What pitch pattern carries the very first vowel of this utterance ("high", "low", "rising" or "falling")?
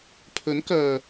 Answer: rising